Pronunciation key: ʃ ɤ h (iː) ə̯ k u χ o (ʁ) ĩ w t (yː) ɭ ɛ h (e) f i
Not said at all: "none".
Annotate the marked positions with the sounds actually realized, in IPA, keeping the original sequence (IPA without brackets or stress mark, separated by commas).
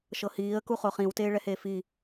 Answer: iː, χ, eː, eː